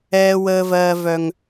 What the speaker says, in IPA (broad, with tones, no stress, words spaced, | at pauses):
ɛː˦wəː˦vɜː˦vœ˦ŋ